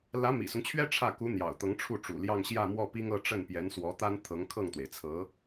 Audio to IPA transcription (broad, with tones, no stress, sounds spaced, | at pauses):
l ä˧˥ m ḭ˨˩ s ʊ˦ ŋ t͡ɕʰ ɥ ɛ˥ ʈ͡ʂʰ ä˥˩ k u˧˥ n̪ j ɑ̰˨˩ ʊ̯ t̪ ɤ˧˥ ŋ ʈ͡ʂʰ u˥˩ ʈ͡ʂ ṵ˨˩ l j ɑ˥˧ ŋ ɕ j ä˥˧ m w ɔ˥˩ p i˥ ŋ ɤ˥˧ ʈ͡ʂ ə˥˩ n p j ɛ˧˥ n s w ɔ˧˥ t̪ a˥ n t̪ʰ ɤ˧˥ ŋ kʰ ɤ˥˩ ŋ t̪ w e˩ ɪ̯ t͡sʰ ɤ˧˥